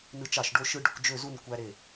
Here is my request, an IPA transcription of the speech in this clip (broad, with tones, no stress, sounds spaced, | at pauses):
n ɯ˧ t͡ʃ ɑ˧˩ ʃ ɖ o˧ ʃ ɯ˧ ɖ ø˧ kʷ d͡ʒ ø˥˧ z u˥˧ n kʷ æ˧ ɾ e˧˩